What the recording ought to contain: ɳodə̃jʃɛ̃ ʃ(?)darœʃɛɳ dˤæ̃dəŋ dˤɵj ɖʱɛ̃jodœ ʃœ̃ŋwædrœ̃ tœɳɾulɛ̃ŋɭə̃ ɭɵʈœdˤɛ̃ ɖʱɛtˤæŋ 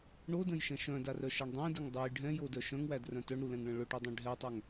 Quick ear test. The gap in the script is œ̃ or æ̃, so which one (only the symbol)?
œ̃